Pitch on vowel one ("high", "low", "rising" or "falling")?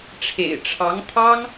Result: low